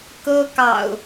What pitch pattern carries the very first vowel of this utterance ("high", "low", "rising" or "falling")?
high